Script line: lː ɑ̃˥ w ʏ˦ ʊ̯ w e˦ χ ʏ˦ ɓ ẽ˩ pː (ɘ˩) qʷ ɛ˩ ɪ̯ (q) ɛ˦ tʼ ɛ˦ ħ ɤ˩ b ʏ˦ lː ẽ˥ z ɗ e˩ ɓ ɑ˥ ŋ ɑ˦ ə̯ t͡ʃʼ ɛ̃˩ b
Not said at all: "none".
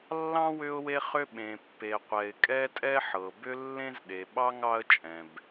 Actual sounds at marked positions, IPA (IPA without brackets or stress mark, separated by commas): e˩, kʼ